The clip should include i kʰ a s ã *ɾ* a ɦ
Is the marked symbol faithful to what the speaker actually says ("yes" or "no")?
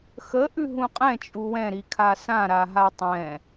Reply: yes